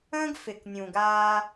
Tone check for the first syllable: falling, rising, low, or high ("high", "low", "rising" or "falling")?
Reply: high